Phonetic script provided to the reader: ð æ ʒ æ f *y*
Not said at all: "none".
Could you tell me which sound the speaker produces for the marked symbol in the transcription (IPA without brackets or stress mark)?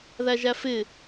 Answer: ɪ